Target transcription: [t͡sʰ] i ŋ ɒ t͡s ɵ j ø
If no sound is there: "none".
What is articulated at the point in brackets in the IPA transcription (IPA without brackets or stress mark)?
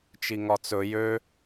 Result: t͡ʃ